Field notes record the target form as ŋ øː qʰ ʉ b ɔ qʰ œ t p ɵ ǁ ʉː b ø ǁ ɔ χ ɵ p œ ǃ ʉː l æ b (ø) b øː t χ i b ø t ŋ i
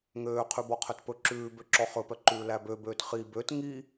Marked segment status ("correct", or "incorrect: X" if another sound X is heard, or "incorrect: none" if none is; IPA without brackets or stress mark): correct